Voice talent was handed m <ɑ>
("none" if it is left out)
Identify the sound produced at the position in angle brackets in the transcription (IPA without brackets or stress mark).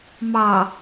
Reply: ɑ